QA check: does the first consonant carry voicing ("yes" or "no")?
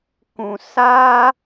no